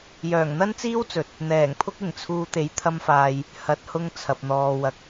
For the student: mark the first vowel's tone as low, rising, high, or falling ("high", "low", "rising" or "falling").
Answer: low